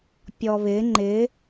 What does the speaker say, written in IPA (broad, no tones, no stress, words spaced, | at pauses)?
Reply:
pʲɔβɪ ŋ͡ǃɪ